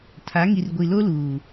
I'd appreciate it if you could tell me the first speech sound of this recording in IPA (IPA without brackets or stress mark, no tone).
tʰ